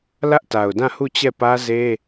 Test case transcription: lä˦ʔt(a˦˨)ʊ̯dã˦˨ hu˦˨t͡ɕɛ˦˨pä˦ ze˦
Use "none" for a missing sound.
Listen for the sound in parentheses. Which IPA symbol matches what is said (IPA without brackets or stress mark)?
a˨